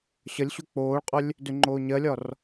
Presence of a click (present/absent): present